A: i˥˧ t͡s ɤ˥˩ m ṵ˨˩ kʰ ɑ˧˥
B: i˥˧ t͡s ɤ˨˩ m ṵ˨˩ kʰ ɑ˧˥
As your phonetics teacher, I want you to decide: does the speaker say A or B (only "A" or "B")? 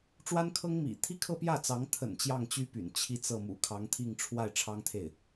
A